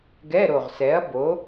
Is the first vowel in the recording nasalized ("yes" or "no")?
no